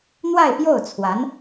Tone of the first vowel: falling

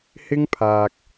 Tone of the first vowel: high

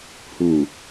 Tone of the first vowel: low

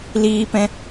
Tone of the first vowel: high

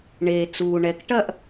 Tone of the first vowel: low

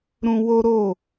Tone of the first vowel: high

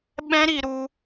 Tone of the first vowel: high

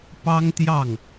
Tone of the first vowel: high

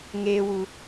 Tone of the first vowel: low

